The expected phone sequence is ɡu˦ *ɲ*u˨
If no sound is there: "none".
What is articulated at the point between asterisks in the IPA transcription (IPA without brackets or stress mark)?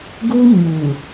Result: ɲ